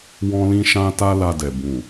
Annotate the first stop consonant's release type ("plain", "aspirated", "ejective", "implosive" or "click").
plain